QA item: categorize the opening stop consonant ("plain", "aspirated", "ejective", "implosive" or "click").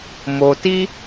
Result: plain